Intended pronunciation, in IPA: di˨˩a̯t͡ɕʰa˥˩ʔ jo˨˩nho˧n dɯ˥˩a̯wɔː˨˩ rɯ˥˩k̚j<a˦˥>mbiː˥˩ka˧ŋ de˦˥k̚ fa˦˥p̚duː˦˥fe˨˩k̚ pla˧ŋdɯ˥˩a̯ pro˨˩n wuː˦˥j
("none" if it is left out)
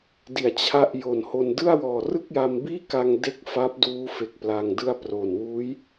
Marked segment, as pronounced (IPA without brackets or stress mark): a˧